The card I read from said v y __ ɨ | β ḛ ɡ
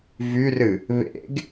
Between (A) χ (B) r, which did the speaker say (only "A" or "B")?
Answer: B